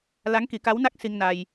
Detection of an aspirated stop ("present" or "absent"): absent